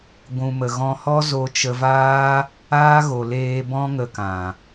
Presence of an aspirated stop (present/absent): absent